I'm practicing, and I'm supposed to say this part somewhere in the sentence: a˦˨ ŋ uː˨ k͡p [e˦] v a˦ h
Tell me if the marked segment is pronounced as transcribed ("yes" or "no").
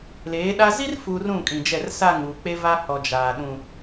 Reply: yes